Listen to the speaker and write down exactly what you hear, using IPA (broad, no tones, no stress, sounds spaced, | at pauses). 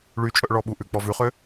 ɭ y t͡ʃʼ œ ʔ ɭ ɔ ɓ u ʔ ʉ k͡p ɔ v ʉ χ ø